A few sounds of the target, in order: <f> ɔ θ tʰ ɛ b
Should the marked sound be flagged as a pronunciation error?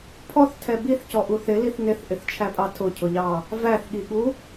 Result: yes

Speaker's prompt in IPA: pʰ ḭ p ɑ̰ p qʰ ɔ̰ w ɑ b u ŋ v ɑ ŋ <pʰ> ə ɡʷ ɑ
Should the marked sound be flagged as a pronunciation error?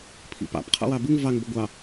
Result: yes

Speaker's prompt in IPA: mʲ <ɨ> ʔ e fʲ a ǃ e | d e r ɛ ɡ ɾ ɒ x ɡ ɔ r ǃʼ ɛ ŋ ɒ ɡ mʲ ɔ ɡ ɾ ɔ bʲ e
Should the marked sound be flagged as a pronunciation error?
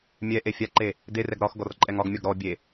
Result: yes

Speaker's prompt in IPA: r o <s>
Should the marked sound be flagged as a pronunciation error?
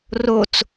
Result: yes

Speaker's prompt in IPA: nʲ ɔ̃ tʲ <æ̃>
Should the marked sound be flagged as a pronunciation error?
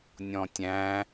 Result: no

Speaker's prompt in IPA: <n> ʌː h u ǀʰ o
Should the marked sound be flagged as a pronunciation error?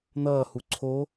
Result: no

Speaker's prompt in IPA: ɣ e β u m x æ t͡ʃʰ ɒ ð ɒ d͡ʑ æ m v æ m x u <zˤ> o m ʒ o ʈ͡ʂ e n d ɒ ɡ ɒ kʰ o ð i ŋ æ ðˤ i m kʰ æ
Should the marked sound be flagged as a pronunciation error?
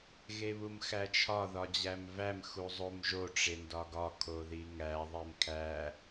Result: no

